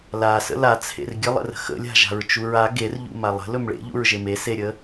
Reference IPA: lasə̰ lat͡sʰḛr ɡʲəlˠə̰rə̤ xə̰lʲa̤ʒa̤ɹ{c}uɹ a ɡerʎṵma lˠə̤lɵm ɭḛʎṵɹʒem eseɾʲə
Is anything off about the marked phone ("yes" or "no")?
yes